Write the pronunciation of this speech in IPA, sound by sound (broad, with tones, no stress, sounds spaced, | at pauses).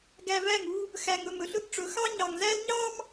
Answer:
ɡ æ˨ v æ˦˨ ŋ u˦ | x æ˨ ŋ ɵ˦˨ m ɵ˨ ɬ ɵ˦ ɡ ʈ͡ʂ ɵ˨˦ x ɑ˦ ɲ ɑ˨ ŋ z æ˦ l ɲ ɑ˦ m